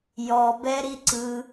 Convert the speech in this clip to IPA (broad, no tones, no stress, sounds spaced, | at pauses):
j ɔ b ɛ ɾ i ǀ ɯ